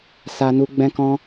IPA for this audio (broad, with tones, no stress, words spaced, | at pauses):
sa˦nu˦ ɡ͡bɛ̃˦kɔ̃˦